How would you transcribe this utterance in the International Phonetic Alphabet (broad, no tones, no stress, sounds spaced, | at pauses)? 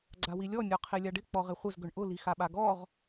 ɡ͡ǀ a w i lʲ ɔ nʲ ɔ qʰ i lʲ a ɖ ɪ k͡p ɔ ʁ ɪ χʷ ɪ z ɡ ʏ ɳ ʔ ʊ l i x a ɓ a ɡ ɔ ʁ